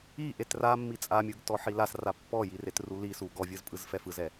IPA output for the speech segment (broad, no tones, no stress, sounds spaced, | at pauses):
i ʔ e t r a mː i t͡sʼ a mʲ ɯ ɡ t ɔ ħ i l a s r a pː ɔ j i r e t r u l i s u ɡ ɔ vʲ ɯ z pʼ ɯ z f ɛ f ɯ z ɛ